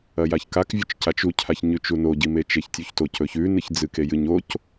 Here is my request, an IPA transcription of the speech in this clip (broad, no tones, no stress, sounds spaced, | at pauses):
ɐ j a ç k a k vʲ ɵ t͡ʃ c a t͡ʃ u cʰ a ç ɲ ʉ t͡ʃ u n o ɟ i m e t͡ʃ e ç tʲ u ç t o c ɵ ç ʉ n ɨ ç d͡z ɨ k e j ɨ ɲ o c